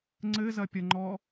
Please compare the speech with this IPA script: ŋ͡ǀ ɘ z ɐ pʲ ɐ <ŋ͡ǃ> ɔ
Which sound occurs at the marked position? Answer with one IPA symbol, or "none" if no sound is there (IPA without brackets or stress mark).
ŋ͡ǃ